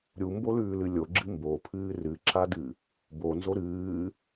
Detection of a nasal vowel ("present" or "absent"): absent